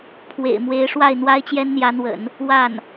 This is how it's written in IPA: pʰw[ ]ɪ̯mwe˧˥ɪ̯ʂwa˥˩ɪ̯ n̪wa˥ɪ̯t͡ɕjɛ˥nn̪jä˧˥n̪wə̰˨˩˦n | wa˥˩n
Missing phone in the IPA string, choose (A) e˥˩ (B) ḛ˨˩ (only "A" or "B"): B